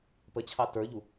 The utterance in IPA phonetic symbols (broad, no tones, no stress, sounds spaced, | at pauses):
p ə t͡ɕʰ ɑ t ə˞ ʎ u